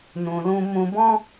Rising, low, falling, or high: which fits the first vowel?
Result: low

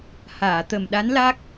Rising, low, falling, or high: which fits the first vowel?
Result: low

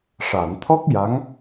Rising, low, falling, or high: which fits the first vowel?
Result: low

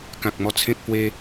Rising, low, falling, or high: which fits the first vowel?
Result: low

